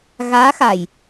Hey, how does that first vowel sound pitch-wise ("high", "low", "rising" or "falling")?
rising